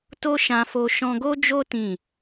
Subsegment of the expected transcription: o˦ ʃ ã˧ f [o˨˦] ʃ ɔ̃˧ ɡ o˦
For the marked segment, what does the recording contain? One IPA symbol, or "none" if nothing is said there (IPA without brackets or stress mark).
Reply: o˧